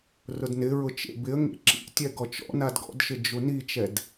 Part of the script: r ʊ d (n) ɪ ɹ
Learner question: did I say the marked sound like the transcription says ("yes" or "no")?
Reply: yes